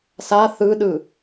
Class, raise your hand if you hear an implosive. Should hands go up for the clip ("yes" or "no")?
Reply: yes